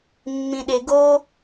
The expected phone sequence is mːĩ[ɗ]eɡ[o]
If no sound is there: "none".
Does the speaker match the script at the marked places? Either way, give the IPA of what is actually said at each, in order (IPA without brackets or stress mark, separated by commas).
ɗ, o